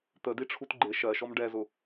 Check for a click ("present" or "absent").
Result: present